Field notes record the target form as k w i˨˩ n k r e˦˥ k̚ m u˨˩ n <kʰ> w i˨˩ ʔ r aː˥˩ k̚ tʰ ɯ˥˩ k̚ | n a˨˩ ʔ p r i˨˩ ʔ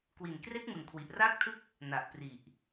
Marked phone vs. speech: correct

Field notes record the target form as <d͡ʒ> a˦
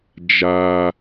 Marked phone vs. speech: correct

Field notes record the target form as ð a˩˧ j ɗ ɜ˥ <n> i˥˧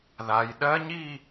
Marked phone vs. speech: incorrect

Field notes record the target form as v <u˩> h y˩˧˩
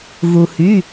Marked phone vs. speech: correct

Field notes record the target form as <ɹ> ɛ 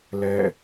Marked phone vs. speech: incorrect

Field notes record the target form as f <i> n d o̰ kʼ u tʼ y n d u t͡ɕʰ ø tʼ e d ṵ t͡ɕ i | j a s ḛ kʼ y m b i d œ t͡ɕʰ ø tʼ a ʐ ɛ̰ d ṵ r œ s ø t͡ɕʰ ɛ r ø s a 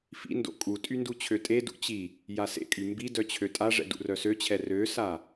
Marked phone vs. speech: incorrect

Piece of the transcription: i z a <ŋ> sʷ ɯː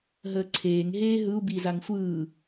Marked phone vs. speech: correct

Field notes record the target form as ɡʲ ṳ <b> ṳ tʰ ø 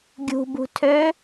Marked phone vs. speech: correct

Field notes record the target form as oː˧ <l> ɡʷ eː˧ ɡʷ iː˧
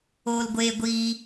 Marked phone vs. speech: correct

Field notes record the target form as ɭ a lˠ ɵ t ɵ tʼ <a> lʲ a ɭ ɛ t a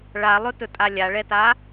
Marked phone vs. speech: correct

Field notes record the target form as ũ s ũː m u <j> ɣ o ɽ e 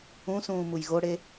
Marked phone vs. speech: correct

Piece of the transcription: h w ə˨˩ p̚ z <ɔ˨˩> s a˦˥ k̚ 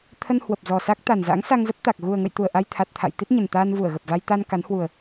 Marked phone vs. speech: correct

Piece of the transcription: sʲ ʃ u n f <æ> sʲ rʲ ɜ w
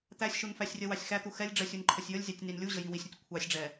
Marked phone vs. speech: correct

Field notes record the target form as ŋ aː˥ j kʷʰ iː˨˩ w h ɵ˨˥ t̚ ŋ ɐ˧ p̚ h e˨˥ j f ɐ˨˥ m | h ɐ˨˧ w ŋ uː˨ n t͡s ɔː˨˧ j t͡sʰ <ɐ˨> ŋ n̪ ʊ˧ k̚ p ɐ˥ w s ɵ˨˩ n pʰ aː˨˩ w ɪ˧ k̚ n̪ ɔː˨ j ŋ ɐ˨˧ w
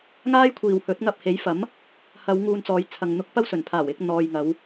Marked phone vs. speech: correct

